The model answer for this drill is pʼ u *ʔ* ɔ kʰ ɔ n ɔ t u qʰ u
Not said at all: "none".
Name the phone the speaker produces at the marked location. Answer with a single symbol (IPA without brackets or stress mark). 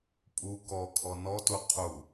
k